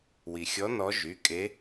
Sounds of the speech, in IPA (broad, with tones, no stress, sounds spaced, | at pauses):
w i˩ xʲ ɔ˧˥ n ɔ˧˥ ʒ y˩˧˩ kʼ e˧˥